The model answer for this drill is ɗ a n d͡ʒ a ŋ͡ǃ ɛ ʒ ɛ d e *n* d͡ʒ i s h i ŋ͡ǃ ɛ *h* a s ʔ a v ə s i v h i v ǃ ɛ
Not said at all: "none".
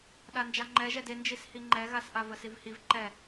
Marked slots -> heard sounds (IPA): n, ɣ

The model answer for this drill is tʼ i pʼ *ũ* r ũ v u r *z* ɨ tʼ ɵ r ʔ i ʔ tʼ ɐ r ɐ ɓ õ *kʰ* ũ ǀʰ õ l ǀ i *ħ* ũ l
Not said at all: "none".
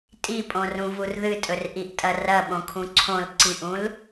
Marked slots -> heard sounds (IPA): õ, ð, kʰ, ʔ

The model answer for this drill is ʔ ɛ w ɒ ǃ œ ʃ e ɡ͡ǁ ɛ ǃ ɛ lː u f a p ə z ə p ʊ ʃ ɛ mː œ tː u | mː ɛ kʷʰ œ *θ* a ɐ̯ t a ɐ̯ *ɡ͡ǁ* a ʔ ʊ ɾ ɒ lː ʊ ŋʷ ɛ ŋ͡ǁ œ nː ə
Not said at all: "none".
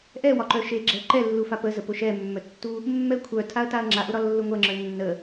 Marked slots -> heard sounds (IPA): tʰ, ŋ͡ǁ

